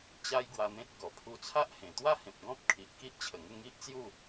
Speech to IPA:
t͡ɕ a˦ j ɡ w a˧ n̪ ẽ˦ t̚ ɡ ɔ˨˩ pʰ u˧ t͡sʰ a˦ ʔ h ẽ˨˩ t̪ w a˥˧ h ẽ˨ p̚ ɡ ɔ̃˦ p̚ kʰ i˨ ʔ k i˦ ʔ t͡ɕʰ ə˨˩ ŋ ə˥˧ ŋ i˦ ʔ t͡s j u˥˧

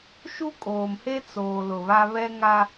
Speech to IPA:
ʃ u˦ kʼ oː˨ m h e˦ t͡s oː˨ l ʊ˨ β a˦ β ɛ˦ ŋ a˦

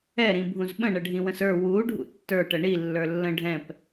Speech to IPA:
ɛ ɾ ĩ bʱ ũ z ɓ ə̃ ɳ ə ɖʱ ĩ w ə̃ s ə˞ w u ɖʱ ṵ tː ə˞ ʈ ə ɳ i lː ə˞ lː ə̃ ɖʱ ɛ̃ p

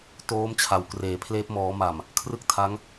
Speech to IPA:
t oː˦˥ m t͡ɕʰ a˨˩ w k r eː˩˦ pʰ l eː˦˥ p̚ m ɔː˩˦ m a˨˩ m | kʰ r ɯ˥˩ k̚ tʰ a˦˥ ŋ

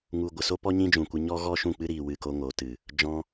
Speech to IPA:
ŋ u˨ ɡʷ ə˨ s o˦ p ɔ˦ ɲ ĩ˦ d͡ʒ ũ˨ kʷ ɨ˧ ɲ ɔ˦ ɣ ɔ˦ ʃ ũ˦˨ k͡p ɨ˦ ɾ iː˨ w ɨ˦˨ k o˦ ŋ o˨˦ t ɨ˨ | d͡ʒ ɔ̃˧

